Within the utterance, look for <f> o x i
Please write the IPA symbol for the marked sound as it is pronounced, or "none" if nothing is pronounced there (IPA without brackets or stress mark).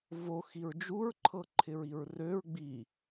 v